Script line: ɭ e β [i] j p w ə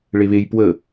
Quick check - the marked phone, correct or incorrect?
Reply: incorrect